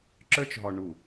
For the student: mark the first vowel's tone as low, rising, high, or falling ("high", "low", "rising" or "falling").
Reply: high